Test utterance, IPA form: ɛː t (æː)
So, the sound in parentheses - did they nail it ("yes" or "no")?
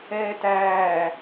yes